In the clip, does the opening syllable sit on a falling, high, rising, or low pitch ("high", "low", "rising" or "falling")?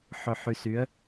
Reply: low